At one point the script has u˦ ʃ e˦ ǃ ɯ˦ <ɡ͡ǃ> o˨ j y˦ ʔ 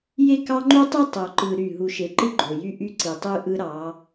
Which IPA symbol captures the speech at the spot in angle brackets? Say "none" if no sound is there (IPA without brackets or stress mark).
ɡ͡ǃ